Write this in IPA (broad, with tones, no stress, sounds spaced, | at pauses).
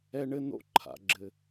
ɛ˦ ɳ ɘ˥ n o̰˦ ǃʰ a̰˩ ɡ͡ǁ ɘ˩